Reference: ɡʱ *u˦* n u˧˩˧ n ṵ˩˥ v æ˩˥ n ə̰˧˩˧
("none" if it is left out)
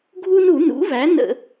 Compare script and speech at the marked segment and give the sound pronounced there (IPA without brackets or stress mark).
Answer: u˦